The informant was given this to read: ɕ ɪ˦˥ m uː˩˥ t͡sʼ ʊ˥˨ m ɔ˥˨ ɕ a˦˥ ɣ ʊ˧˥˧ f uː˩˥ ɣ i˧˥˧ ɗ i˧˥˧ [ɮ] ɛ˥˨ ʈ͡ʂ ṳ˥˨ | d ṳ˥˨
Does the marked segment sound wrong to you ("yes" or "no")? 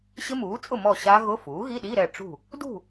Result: yes